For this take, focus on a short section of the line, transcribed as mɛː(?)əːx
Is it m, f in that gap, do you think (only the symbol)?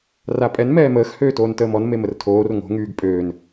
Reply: m